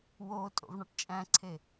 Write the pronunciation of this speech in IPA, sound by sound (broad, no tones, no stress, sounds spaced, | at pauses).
w o tʼ o̰ v ɳ ɑ ʈ t͡ʃʼ æ̃ ǀʰ e